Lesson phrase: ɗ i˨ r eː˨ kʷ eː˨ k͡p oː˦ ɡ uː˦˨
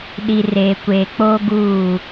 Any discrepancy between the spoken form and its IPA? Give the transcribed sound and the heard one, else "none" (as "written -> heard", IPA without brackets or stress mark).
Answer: none